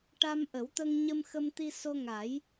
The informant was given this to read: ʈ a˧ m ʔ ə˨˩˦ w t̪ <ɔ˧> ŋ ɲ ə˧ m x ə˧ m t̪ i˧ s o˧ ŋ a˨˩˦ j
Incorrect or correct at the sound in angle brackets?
incorrect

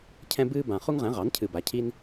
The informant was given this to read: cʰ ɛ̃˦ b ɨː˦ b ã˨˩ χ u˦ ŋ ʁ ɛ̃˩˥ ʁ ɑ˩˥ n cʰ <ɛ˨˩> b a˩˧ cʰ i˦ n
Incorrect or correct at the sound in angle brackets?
incorrect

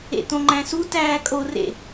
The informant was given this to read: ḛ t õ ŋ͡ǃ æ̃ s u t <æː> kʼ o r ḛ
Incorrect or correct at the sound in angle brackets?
correct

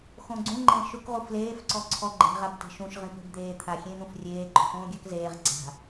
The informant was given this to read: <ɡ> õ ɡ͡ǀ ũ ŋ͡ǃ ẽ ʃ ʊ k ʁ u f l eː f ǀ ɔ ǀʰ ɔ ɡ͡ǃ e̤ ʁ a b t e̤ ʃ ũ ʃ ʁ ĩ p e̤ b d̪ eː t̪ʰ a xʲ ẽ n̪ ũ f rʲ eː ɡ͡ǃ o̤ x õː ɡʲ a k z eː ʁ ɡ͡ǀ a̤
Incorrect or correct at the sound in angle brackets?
incorrect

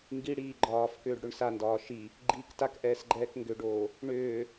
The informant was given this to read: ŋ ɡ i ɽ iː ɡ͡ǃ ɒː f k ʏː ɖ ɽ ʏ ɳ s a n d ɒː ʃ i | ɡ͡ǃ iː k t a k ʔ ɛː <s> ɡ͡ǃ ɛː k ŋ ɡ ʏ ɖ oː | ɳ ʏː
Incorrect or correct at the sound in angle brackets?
correct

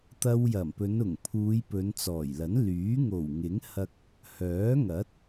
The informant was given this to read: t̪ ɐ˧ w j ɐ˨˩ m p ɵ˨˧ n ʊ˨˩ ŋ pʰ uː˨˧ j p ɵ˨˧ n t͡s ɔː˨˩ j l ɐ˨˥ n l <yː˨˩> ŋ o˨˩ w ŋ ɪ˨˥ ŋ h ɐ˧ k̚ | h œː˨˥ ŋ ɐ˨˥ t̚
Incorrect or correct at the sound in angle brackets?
incorrect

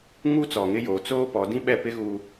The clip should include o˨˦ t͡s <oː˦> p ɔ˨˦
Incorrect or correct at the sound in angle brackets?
correct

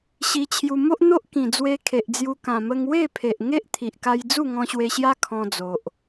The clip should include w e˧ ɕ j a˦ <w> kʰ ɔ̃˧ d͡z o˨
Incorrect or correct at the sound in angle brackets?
incorrect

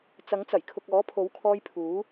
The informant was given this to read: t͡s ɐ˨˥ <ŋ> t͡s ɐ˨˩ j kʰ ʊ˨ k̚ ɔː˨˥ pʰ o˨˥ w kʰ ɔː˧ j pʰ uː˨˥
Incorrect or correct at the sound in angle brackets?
correct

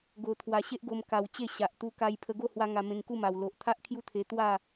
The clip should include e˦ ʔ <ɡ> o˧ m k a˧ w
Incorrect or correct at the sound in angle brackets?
correct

